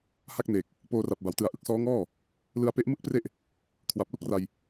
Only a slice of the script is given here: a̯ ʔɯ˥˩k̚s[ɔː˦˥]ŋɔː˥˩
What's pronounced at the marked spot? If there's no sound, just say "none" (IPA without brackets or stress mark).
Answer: ɔː˦˥